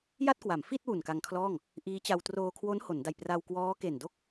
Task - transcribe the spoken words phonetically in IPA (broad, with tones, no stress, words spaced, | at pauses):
ja˥˩t̚kwa˩˦mfi˥˩t̚ wu˨˩nka˧ŋkʰlɔː˥˩ŋ | ʔiː˦˥t͡ɕa˧w troː˧kʰwo˦˥n ho˩˦nda˨˩j pra˧wkwɔː˦˥ke˨˩ndo˥˩k̚